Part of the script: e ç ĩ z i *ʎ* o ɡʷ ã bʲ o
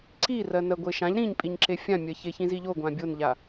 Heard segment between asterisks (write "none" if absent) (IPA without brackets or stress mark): ʎ